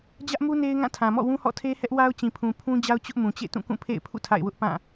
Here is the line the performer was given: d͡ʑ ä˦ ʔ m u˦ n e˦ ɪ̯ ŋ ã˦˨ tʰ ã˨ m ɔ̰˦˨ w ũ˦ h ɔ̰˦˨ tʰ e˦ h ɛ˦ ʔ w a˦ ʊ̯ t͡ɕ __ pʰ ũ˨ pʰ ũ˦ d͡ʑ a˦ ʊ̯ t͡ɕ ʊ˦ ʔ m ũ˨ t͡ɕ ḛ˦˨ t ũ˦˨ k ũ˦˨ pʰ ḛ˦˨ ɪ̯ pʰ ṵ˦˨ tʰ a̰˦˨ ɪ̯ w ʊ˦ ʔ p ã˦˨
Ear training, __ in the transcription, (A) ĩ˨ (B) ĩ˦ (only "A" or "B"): A